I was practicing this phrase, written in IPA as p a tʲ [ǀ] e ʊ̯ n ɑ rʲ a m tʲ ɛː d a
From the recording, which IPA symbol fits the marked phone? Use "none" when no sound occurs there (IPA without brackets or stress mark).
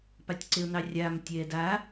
ǀ